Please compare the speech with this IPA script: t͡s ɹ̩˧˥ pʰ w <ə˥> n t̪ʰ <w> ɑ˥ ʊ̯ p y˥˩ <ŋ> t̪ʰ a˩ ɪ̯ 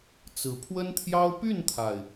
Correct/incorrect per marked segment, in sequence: correct, incorrect: j, incorrect: n

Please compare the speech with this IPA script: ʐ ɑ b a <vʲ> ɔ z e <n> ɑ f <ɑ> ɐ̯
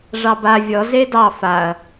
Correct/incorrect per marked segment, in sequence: correct, incorrect: d, incorrect: a

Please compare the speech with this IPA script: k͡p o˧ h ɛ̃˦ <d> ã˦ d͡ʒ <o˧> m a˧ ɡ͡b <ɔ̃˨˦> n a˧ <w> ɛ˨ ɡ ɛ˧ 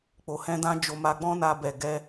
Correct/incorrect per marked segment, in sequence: correct, correct, incorrect: ɔ̃˦, incorrect: b

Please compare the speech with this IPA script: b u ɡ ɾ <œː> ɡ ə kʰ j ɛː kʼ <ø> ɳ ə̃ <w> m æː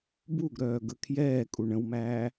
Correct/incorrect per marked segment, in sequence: correct, incorrect: u, correct

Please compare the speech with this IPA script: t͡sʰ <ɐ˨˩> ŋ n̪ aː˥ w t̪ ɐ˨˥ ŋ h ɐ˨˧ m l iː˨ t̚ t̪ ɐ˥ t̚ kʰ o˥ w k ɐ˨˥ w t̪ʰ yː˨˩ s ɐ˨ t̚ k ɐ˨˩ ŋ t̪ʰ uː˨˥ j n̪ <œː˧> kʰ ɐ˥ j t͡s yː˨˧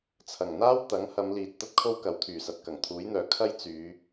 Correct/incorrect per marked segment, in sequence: correct, incorrect: œː˨˧

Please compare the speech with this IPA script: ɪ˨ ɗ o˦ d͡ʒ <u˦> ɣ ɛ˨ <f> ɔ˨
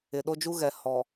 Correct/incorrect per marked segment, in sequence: correct, incorrect: h

